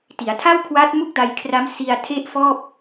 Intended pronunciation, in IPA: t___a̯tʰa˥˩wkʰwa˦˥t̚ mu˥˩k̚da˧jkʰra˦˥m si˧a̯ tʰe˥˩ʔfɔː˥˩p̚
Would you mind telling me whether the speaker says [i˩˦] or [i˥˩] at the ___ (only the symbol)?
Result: i˩˦